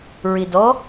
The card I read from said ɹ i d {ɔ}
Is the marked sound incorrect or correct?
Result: correct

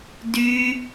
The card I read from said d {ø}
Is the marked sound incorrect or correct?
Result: incorrect: y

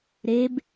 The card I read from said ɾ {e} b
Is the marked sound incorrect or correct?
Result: correct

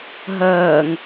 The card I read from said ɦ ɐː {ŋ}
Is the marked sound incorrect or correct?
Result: correct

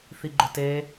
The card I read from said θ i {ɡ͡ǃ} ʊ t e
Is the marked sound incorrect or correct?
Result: correct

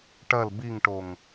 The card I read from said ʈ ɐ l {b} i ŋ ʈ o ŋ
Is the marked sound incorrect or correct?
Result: correct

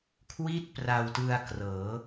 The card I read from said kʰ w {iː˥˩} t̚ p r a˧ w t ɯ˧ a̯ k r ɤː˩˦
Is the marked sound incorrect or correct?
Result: incorrect: i˥˩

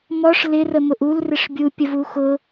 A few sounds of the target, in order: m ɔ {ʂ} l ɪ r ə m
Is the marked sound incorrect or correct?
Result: correct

